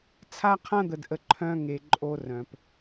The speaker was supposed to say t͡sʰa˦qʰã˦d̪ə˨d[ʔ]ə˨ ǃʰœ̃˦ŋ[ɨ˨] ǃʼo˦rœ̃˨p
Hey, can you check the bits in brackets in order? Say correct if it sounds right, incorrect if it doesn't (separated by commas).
correct, incorrect